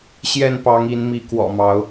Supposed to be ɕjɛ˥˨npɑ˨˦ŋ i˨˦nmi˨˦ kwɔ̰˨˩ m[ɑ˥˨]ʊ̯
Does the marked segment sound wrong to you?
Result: yes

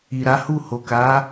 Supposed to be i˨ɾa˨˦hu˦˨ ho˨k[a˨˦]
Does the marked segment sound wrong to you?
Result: no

